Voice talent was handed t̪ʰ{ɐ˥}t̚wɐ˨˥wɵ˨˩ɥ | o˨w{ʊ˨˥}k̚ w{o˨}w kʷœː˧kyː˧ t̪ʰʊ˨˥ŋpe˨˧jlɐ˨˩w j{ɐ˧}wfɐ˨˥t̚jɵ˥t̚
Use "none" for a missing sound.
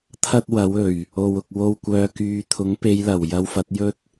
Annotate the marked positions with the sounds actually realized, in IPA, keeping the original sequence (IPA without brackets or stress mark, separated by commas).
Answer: ɐ˥, ʊ˨, o˧, ɐ˧